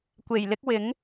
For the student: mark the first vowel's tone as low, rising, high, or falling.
low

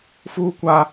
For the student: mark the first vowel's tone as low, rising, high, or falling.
high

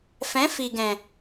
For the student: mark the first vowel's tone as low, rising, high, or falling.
rising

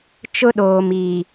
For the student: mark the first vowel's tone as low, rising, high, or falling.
high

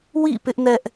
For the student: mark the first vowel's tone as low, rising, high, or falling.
falling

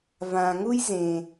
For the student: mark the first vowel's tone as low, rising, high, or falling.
low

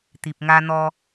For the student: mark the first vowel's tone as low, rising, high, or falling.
low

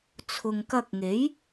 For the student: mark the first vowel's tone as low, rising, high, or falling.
low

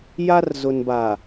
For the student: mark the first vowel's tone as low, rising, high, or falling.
high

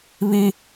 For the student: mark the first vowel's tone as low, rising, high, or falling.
high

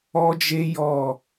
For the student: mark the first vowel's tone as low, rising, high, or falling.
high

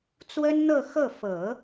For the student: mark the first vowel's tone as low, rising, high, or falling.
high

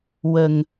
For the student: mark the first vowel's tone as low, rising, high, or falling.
low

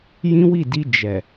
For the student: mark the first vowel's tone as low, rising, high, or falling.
high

